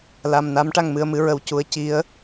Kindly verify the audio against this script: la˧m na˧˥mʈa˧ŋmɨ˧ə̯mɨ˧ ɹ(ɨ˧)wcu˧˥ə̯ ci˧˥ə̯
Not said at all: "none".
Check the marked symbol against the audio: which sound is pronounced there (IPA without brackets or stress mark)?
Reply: ə˧